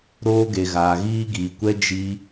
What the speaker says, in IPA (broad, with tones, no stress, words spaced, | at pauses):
ɾoː˧ɡe˨ɣaː˨ ɣiː˦ ɡiː˨kʷɛ˦ d͡ʒi˦